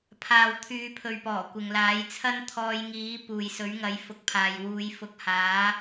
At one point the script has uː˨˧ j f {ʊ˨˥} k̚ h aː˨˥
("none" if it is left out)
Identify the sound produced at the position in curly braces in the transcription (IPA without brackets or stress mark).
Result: ʊ˨˥